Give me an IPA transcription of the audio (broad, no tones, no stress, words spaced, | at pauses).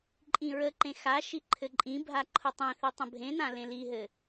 ǃʼĩɹəǃẽ xaʃi ǃʰɘǃʼĩbʱa ǃʰʊtˤẽθi tˤə̃bʱẽnã lẽliɦɘ